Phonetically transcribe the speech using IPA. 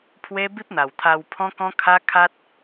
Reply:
pʰ w e˦ b i˦ p̚ n̪ a˨˩ w t̪ʰ a˧ w pʰ ɔ̃˦ k ɔ̃˦ kʰ a˦ kʰ a˦ t̚

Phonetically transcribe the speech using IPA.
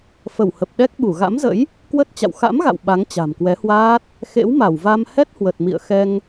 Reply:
f ə˧˩ w h ə˨˩ p̚ ɗ ɛ˦˥ k̚ ɓ u˧˩ ɣ a̰˧˥ m z ə̰˧˥ j | k w ə˦˥ t̚ t͡ɕ a̰˧˨ w x a̰˧˥ m ɣ a̰˧˨ w ɓ a˨˦ ŋ t͡ɕ a̤˨˩ m k w ɛ˨˦ h w aː˦˥ t̚ | x ḛ˧˥ w m a˧˩ w v a˧ m h ɛ˦˥ t̚ h w ə˨˩ t̚ m ḭ˧˨ ə̯ x ɛ˧ ŋ

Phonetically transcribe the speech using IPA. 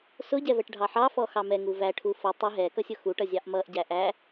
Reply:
s ʊ ɟ ɛ v ɛ ʈ ɖʱ ɑ ħ ɑ f ɔ x ɑ m ɛ ŋ u v æ ʈʰ u f ʌ tˤ ə ɦ ɛ k ʌ sʲ ʊ x u ʈ ʌ zʲ ɑ ʔ m ʌ ʔ ɟ æ ʔ æ

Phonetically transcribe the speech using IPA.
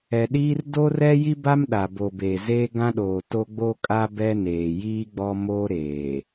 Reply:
ɛ˨ ɗ iː˦ r d o˦ r ɛ˦ j i˦ b a˦ m ɗ a˨ b o˨ b eː˨ z eː˦ ɡ ã˦ ɗ oː˨ t o˦ ɡ͡b o˦ kʼ a˦ b ɛ˦ n eː˨ j iː˦ ɡ͡b ɔ˦ m oː˦ ɾ eː˨

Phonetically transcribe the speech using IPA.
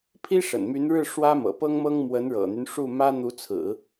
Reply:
pʰ i˥ ʂ ə̰˨˩ n m y˧˥ n ɻ ɻ̩˥˩ ʂ w ä˥ m ɤ̰˨˩ p ɤ˥ ŋ m ɤ˥ ŋ m w ə˧˥ n ɻ ɤ̰˨˩ n̪ y˦ n ʂ u˥˩ m ä˥ n̪ u˧˥ t͡sʰ ɹ̩˨˩˦

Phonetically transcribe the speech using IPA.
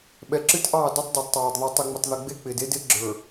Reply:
ɓ ɛ˨ ǁ ɨ˦ t ʔ ɑː˦˨ d o˦ tˤ dˤ ɛ˨ d tˤ ɑː˨ d ðˤ ɨ˨ tˤ ɨ˨ ŋ͡m ɪ˨ tˤ ð ɪ˨ ɡ͡b e˦ k͡p ɪː˨ d e˦ d ɪː˦ ɡ͡ǁ ə˞˨

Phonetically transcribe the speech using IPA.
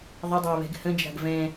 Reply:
ðˤ ɪ dˤ ɪː β ɛ̤ ɡ h ə̃ d͡ʒ a̤ ɡ v ɛ̃

